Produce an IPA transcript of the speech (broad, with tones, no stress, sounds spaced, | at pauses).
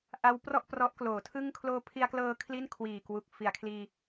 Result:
ʔ a˦˥ w p r ɔ˥˩ ʔ p r ɔ˦˥ ʔ k l oː˩˦ tʰ ɯ˥˩ ŋ kʰ l oː˧ pʰ i˧ a̯ k l ɤː˧ kʰ l i˥˩ n kʰ w iː˨˩ k w u˨˩ k̚ f i˨˩ a̯ kʰ l iː˧